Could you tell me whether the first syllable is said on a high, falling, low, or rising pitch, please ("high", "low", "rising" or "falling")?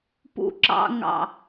low